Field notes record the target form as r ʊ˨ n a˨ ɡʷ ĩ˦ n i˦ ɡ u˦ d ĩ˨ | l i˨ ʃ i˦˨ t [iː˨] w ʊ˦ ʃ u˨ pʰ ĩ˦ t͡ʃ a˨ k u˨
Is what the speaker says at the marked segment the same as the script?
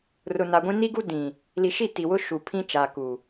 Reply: no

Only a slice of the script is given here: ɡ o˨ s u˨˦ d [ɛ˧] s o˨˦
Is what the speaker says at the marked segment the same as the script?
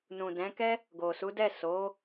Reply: no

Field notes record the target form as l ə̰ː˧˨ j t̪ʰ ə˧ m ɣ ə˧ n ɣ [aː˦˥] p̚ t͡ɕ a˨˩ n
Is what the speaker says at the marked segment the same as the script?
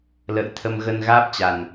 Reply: yes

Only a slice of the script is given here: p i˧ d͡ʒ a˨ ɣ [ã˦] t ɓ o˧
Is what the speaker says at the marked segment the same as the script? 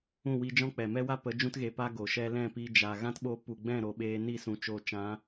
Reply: yes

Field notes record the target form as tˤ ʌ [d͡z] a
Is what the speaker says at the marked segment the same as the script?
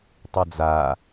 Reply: yes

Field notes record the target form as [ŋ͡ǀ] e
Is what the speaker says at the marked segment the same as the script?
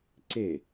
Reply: no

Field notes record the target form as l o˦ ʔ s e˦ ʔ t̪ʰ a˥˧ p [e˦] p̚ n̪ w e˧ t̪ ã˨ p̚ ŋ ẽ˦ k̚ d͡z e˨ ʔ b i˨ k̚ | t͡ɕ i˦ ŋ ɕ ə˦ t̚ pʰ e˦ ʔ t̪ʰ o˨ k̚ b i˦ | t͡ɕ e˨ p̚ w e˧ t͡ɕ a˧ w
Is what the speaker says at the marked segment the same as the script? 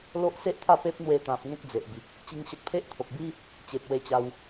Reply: yes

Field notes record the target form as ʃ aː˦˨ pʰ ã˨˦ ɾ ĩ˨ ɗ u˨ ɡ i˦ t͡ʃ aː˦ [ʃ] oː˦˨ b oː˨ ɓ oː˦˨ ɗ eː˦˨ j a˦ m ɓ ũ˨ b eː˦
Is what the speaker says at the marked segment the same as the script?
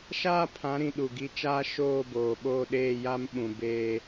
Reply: yes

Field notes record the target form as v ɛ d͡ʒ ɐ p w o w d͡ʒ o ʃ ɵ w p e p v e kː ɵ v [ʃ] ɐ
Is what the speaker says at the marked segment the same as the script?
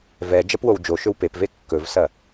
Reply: no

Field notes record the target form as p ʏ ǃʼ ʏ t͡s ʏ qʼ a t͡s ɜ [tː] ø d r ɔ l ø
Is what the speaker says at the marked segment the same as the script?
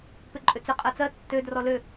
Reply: yes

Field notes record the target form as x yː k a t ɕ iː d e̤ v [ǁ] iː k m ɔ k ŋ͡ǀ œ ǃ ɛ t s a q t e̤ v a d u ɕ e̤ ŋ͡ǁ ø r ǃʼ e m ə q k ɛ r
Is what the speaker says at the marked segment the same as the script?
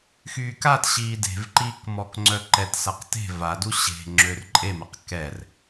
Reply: no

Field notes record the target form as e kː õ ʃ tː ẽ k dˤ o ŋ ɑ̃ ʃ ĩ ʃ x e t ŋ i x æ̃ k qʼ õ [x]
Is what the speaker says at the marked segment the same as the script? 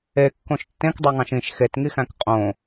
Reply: no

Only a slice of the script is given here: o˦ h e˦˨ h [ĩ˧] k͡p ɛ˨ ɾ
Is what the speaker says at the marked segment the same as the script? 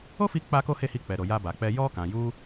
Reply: no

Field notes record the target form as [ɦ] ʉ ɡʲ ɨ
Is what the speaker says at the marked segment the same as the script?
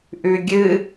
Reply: no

